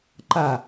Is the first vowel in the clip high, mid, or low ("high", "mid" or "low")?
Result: low